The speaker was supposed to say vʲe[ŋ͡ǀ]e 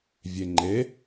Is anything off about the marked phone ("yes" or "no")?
yes